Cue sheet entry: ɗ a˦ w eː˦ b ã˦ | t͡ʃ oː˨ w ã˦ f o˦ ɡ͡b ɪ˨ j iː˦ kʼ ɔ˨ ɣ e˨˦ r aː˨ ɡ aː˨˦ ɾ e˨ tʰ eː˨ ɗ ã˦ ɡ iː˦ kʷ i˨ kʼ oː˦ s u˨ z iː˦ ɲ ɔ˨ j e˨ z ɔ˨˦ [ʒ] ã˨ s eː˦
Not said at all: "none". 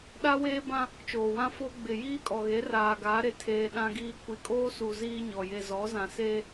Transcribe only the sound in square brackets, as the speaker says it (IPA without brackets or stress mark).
z